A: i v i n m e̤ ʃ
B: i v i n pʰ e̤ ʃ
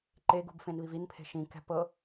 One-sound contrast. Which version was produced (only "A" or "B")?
B